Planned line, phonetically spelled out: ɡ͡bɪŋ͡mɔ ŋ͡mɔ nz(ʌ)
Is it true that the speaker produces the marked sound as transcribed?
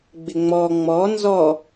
no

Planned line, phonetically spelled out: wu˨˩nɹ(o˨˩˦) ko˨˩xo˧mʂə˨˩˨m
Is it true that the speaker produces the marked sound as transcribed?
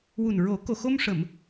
yes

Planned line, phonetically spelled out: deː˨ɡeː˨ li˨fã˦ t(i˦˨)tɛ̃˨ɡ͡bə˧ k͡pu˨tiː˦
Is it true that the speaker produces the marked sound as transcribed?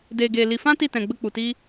yes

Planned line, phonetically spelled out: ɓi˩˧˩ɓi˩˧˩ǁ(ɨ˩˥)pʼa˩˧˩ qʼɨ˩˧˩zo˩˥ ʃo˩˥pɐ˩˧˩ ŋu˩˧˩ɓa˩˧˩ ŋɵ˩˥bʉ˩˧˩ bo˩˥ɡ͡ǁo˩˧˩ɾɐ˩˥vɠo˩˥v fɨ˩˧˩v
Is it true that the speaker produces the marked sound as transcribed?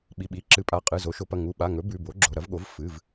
yes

